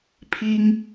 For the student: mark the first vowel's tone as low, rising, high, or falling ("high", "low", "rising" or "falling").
high